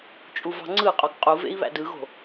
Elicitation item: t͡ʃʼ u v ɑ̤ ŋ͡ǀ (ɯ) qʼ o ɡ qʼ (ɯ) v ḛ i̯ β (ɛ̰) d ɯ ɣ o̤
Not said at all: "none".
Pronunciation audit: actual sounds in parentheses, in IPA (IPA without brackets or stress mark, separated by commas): ɯ, u, æ̰